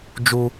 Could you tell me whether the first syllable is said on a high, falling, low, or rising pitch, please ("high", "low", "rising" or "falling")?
high